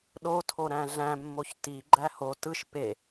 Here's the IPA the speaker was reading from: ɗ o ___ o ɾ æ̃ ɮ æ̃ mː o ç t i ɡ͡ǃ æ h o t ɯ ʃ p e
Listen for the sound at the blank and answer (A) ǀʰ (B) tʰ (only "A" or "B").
B